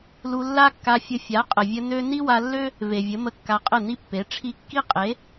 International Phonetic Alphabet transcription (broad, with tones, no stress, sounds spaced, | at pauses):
l u˧ lː a˦ kː a˧ fʲ ə˧ fʲ a˨˦ qʼ ə˨ vʲ ə˧ n ø˦ n i˦ w a˧ lː ø˦ | v e˨ vʲ ə˨˦ m ə˧ kː a˧ qʼ ə˦˨ n i˦ pː e˨˦ ʈ͡ʂʰ i˧ kː i˦ qʼ e˨˦